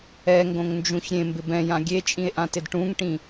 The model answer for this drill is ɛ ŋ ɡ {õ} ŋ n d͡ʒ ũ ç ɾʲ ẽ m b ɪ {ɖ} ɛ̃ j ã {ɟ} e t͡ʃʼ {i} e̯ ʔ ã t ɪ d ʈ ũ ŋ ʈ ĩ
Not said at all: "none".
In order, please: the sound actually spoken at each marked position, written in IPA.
õ, b, ɡʲ, ĩ

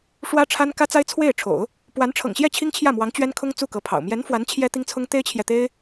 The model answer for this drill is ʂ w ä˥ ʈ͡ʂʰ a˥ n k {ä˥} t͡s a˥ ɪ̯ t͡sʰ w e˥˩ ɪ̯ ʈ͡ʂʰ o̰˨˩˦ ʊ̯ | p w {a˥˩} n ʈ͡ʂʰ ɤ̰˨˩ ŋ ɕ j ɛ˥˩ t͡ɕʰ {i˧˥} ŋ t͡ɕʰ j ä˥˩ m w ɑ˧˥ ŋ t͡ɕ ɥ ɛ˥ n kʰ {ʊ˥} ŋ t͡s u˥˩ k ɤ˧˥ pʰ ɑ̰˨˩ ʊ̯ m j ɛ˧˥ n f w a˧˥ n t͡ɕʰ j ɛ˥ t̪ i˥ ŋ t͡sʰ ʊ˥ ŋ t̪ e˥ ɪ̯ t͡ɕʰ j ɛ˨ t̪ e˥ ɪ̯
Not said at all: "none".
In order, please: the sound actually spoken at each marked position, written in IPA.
ä˥, a˧˥, i˥, ʊ˥

